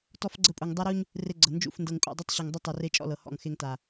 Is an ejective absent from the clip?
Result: no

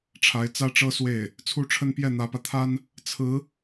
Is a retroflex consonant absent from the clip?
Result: no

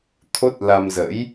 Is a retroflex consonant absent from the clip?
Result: yes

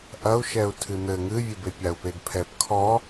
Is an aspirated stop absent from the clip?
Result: no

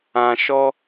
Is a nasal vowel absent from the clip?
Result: no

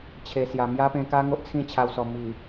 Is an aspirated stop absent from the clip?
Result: no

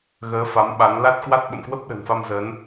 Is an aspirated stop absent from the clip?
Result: yes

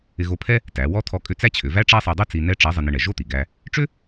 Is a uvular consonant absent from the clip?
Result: yes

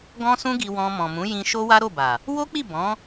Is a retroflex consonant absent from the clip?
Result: yes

